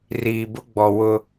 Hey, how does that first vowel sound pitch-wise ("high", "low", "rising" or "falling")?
low